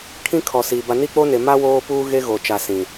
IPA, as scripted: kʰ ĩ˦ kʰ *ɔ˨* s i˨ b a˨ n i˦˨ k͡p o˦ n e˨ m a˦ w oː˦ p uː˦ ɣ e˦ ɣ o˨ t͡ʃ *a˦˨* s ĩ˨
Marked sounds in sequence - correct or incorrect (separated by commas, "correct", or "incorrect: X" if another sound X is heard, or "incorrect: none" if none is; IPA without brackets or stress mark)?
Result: correct, incorrect: a˨